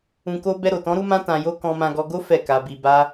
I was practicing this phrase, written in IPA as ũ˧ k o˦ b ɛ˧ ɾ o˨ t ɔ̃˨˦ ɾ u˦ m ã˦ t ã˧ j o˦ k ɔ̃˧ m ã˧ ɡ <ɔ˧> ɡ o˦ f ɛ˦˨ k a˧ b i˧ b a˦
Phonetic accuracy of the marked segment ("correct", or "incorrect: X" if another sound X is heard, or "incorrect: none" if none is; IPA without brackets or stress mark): correct